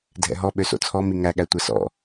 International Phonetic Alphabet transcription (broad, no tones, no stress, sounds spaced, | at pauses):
dʱ ɛ̰ ɦ ɔ ɓ ø s o̰ t͡sʰ ɔ m i ŋ æ ɠ æ tʷ ɛ s ɔ̰